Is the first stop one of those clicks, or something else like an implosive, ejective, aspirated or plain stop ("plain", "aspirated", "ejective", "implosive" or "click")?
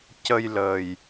plain